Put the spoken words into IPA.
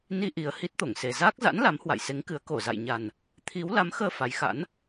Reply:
n i˧ ʔ i˨˩ ə̯ h i˦˥ t̚ t̪ o˧˩ ŋ s e˨˩ z aː˦˥ k̚ z a̰˧˥ n l a˨˦ m h w a̰˧˨ j s e˨˦ ŋ k ɨ˨˦ ə̯ k o˧˩ z a̰˧˨ j ɲ a˨˩ n | t̪ʰ i˨˦ w l a˨˦ m x əː˧ f a˨˦ j x a̰˧˥ n

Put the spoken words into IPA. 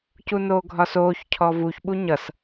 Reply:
c u n oː ɡʱ ɒ s oː ç cʰ ɔ v u ç ɓ u ɲ ʌ s

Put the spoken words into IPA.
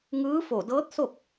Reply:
ŋ ɯː˧˥ f o˧˩ d ɤː˧˥ t̚ s o˥˨ k̚

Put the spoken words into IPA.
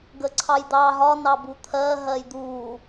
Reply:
ɡ ə ǀʰ ɑ j d̪ ɑ ɦ ɒ n ɑ b u t̪ʰ ɜ ɦ ɜ j d̪ u

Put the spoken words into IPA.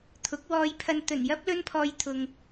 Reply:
t̪ʰ ʊ˨˥ k̚ w ɔː˧ j pʰ ɐ˧ n t̪ ɵ˨˩ n j ɐ˥ p̚ l ɵ˥ n pʰ ɔː˧ j t̪ʰ ʊ˨ ŋ

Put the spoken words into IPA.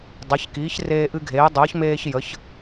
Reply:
dˤ a˩˥ ç k iː˩˥ ç r eː˧ ʔ ɨ˧ ɡʱ eː˩˥ dˤ əː˩˥ ç m eː˧ ç j ə˩˥ ç

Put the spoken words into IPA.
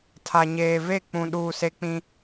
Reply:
tʰ a˨ ɲ eː˨ v e˦˨ k͡p ũ˨ ɗ uː˨ s e˦ k͡p ĩ˦

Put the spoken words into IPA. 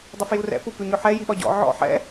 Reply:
dˤ ɪ f j u r ɛ̰ p u p ʉ ɲ ʏ ħ ɛ j i ɓ ɒ ɟ ɔ̰ ʕ ɔ̰ ħ ɛ̰

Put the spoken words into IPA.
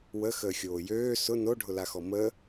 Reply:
w ə x əː xʲ oː j øː s ʊ n o ɖʱ ʊ l a x ɔ m ə

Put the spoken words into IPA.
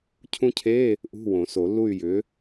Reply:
cʰ ũ˦˥ cʰ e˧˥˧ | ʔ ṳ˧˥˧ w õ˨˩˦ s o˨˩˦ lː u˥˨ y̯ j ʏ˨˥

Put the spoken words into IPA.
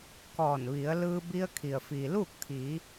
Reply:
k ɔː˧˩ n ʋ i˩˧ ə̯ l ɯː˧ b i˧ ə̯ kʰ i˩ ə̯ f iː˩ l uː˥˨ k̚ t̪ʰ iː˩˧

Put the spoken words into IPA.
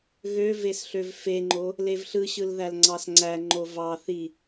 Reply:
ɣ ø v e s ɬ ø v f e ŋ͡ǃ o | l e v ɬ ɯ ɕ ɯ l ð æ l ŋ͡ǀ ɑ s ŋ͡ǀ æ ŋ͡ǃ o v ɑ θ i

